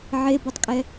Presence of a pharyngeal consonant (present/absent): present